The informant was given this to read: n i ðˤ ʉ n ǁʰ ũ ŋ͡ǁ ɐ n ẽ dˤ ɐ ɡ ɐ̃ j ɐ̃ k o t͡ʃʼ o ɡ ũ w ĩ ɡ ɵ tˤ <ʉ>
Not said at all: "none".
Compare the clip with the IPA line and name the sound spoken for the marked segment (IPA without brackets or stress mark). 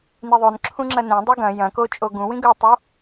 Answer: u